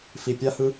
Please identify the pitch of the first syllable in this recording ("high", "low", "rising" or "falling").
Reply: low